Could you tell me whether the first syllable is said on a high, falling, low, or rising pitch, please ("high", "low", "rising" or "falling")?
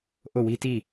falling